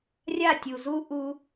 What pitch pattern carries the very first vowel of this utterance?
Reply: falling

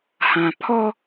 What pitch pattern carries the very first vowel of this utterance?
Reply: low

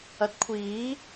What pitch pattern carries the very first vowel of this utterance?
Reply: rising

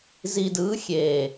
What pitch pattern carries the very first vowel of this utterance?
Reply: low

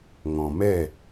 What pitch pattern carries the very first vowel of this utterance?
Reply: low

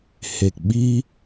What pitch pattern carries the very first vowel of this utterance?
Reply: low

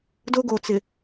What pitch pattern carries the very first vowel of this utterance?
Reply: high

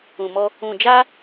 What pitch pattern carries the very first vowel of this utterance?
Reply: low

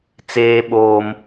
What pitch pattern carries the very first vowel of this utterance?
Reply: high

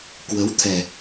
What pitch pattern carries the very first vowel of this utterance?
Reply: rising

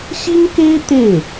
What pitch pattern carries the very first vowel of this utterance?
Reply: high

